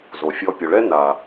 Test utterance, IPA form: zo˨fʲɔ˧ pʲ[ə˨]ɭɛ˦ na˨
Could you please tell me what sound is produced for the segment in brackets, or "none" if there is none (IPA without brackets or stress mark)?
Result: ɵ˨